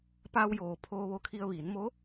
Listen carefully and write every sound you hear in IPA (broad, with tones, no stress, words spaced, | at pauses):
paː˧wjoː˩ pʰoː˧ʋo˧˥kʰi˧ə̯ ʋiː˩˧nmo˧˥